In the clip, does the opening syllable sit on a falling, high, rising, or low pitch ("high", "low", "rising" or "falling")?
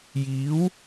rising